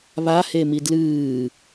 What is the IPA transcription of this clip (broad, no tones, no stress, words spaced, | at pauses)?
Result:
βahemi dlɨː